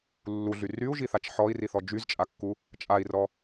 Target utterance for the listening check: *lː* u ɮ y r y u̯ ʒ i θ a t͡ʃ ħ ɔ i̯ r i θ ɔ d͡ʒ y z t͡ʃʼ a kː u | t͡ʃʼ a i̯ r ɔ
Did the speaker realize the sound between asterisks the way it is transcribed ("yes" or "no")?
yes